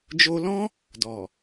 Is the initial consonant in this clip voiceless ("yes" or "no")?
no